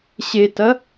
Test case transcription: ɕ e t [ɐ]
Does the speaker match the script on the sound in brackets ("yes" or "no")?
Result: yes